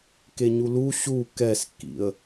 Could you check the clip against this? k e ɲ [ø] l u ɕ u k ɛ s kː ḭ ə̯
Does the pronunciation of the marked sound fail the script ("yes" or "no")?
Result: yes